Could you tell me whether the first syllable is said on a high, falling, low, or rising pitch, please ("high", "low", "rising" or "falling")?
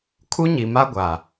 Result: high